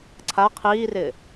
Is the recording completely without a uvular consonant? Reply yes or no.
no